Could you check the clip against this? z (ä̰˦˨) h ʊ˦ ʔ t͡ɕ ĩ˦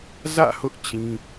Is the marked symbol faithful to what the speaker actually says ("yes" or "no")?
yes